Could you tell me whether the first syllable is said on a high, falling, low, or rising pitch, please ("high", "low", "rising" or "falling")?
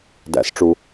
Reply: rising